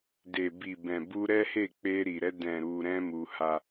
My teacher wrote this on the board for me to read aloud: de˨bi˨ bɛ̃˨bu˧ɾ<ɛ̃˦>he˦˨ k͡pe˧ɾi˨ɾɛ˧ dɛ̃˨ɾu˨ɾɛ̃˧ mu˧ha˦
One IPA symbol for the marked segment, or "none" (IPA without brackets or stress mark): ɛ˦